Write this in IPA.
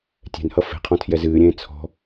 tʲ ɛ̤ n h ʌ f e̤ qʰ ɔ̃ tʰ j ɛ z ɨː ɾʲ ẽː t͡sʰ ɔ̤

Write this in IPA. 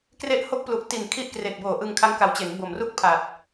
k r e˥˩ ʔ h o˦˥ k̚ p l u˨˩ ʔ t i˨˩ n kʰ i˦˥ ʔ k r e˨˩ k̚ b oː˨˩ ʔ ɯ˧ ŋ kʰ a˦˥ ŋ k a˨˩ w t͡ɕ e˩˦ n b o˨˩ m r u˥˩ k̚ pʰ a˨˩ t̚

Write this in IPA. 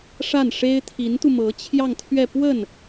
ʂ a˥˩ n ʂ e˥ ɪ̯ t̪ʰ i˧˥ n t̪ u˧ m ɤ˧˥ t͡ɕʰ j ɑ˥˧ ŋ t̪ʰ ɥ ɛ˥˧ p w ə˥˩ n

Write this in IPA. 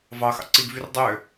v ɑ x ɑ̰ ǀ i ɡ v y r dˤ ø

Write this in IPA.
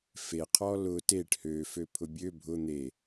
f e qʰ ɔ l ʊ t e ʈ h ø f ø pʰ ʊ bʲ ø bʱ ʊ n̪ e

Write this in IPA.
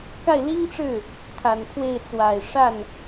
k a˥˩ ɪ̯ l i˥ ŋ ʈ͡ʂ ɻ̩˥˩ | kʰ a˨˩ n pʰ w e˥˩ ɪ̯ t͡s w a˨˩ ɪ̯ ʂ a˥˩ n

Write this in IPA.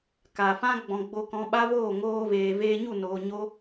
k a˨ f ã˦ ɡ͡b ɔ̃˨ ɡ͡b o˧ k ɔ̃˧ ɓ a˦ v oː˦˨ ŋ oː˧ v eː˨ v eː˧ ɲ u˦˨ n oː˨ ɲ o˧

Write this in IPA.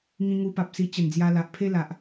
ŋ ĩ˧ ŋ u˧ p a˨ p̚ s i˧ t͡ɕ ə˨˩ n d͡z j a˧ l a˨ ʔ pʰ e˦ l a˨ ʔ

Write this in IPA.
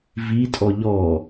v i tʼ ɔ ʎ ɔ

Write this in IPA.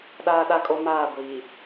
ɗ aː˦ ɗ a˦ kʼ o˦ m aː˦˨ ɡʷ iː˨

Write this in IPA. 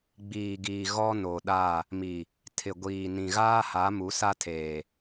ɡ͡b iː˨ ɡ iː˨ ɣ ɔ˦ n o˨ ɗ a˦˨ | m i˨ | tʰ ɪ˨ ɡʷ iː˨ n ĩ˨ ɣ aː˦ h a˨˦ m u˨˦ s a˦ tʰ eː˨

